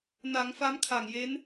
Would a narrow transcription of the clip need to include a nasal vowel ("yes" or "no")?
no